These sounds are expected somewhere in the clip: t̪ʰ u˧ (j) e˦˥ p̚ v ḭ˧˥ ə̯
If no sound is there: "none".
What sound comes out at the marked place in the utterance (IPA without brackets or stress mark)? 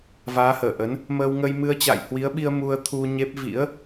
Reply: ɲ